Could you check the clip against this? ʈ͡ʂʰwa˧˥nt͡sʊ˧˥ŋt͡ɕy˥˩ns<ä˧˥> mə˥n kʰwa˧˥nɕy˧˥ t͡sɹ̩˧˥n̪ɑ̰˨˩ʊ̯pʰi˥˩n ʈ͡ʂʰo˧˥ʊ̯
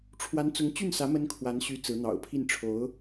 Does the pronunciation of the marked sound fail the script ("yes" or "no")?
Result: no